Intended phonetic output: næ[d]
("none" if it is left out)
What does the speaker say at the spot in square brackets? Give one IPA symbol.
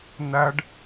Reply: ɖ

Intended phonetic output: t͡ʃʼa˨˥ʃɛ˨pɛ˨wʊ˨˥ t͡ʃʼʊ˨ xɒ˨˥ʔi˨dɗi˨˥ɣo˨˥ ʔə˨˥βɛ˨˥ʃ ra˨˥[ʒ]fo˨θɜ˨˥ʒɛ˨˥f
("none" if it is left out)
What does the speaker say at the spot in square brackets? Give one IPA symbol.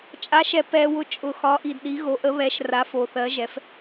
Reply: none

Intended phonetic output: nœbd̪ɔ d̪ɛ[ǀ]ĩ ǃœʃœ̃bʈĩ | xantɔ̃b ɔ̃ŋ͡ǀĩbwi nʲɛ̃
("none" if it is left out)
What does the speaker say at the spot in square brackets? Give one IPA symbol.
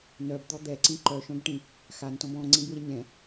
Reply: ǀ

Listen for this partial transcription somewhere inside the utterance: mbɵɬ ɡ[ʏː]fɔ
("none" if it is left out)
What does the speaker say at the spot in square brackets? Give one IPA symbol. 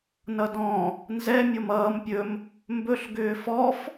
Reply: ʏː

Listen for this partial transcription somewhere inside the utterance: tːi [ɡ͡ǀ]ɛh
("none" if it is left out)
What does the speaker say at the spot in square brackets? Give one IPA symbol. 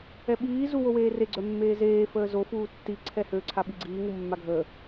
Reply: ǀʰ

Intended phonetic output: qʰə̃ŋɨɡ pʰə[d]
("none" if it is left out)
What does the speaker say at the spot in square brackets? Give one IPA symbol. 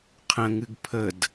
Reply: d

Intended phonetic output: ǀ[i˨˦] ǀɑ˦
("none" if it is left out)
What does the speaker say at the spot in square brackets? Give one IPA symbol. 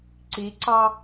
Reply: i˨˦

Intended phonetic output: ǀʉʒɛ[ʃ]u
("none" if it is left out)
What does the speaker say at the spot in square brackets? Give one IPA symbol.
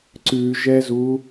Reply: z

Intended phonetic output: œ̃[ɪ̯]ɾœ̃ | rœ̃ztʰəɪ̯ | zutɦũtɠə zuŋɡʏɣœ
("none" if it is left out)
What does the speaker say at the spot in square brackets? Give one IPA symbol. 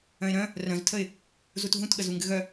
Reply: ɪ̯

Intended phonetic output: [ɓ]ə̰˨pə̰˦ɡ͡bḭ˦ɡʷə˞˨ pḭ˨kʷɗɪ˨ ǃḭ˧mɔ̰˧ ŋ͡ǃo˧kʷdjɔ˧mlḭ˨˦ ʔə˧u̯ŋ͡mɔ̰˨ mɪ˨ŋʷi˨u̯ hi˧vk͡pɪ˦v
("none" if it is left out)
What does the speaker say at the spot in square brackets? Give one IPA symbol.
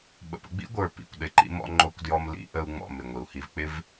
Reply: ɓ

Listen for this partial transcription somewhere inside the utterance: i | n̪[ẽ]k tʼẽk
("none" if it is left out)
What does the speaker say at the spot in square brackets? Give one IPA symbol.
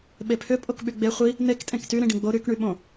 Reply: e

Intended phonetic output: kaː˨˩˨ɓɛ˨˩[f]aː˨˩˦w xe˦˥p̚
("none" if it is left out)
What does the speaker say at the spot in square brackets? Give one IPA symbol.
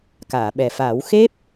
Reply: f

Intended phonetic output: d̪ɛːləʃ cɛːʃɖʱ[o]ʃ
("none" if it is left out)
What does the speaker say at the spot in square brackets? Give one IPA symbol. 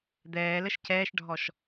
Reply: ɔ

